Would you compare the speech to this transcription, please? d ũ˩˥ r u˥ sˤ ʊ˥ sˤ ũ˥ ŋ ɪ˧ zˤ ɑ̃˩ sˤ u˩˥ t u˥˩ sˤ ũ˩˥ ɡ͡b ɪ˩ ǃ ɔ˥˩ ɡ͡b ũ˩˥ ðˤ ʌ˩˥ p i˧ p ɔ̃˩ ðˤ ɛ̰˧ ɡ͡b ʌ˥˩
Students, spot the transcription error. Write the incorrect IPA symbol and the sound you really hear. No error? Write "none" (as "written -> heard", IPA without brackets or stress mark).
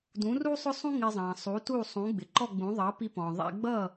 none